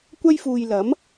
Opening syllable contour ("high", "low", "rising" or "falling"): high